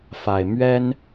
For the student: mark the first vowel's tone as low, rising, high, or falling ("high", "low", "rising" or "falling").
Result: low